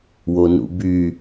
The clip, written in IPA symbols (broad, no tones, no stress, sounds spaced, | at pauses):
w o n ṵ b y